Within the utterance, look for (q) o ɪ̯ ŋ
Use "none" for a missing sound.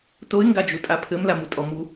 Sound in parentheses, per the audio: t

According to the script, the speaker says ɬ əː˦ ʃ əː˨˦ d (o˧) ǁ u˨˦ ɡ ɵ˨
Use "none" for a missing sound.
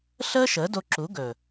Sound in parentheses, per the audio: o˧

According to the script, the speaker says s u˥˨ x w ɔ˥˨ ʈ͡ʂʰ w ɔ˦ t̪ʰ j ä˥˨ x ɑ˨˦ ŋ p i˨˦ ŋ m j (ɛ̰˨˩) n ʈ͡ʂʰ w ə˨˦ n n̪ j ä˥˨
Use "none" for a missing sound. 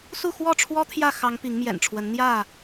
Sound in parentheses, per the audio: ɛ̰˨˩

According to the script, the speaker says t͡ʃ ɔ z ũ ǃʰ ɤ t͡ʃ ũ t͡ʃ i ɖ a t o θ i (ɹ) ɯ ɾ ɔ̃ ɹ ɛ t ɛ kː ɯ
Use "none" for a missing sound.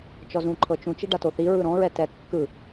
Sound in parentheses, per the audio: ɹ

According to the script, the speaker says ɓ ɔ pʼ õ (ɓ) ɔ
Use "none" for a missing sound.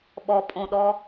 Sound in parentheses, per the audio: ɗ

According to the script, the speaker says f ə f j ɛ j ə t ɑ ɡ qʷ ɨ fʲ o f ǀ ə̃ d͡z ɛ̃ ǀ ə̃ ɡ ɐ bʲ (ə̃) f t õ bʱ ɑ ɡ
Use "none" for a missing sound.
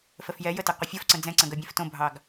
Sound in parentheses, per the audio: ɛ̃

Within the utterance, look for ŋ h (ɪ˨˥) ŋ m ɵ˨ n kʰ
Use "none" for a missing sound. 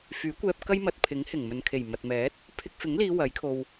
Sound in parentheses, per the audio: ɪ˨˩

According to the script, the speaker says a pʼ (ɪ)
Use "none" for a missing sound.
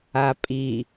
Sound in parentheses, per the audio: i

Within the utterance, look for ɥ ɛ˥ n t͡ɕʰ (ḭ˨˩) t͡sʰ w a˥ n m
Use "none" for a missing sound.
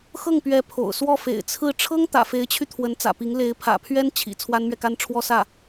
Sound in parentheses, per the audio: ḭ˨˩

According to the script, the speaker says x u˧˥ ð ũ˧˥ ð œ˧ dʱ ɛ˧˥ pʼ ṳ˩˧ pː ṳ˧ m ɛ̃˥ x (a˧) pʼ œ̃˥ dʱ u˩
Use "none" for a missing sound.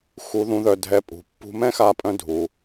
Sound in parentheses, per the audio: a˧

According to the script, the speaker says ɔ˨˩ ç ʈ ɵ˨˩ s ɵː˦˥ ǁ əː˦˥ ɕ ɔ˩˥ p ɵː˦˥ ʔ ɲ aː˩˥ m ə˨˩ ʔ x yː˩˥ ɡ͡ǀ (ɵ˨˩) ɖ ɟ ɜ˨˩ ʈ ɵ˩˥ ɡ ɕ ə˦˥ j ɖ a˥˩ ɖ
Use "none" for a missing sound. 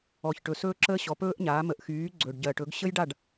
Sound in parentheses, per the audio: ɵ˨˩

